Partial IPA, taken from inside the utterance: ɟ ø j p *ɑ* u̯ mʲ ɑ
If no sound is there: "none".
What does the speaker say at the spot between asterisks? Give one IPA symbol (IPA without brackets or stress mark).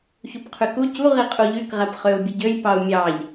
ɑ